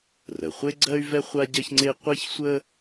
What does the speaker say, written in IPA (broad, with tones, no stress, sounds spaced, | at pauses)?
r ə˩ χʷ e˥ ɡ͡ǀ ɜ˥ y̯ v ɛ˥ χʷ a˥ ɟ ɜ˥ ç ŋ͡ǀ e˥ qʷ e˥ ç sʷ ə˥